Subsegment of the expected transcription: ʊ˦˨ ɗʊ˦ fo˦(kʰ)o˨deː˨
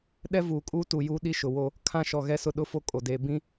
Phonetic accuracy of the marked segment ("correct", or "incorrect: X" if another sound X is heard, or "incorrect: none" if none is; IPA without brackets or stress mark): incorrect: kʼ